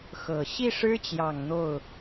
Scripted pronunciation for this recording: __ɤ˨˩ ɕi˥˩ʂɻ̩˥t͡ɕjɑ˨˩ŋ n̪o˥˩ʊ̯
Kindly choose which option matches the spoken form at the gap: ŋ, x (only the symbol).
x